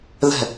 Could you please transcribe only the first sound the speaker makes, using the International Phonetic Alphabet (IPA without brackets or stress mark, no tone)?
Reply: ð